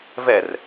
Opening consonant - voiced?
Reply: yes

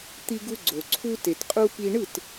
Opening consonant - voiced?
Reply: no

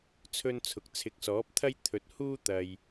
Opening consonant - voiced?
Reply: no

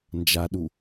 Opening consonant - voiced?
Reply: yes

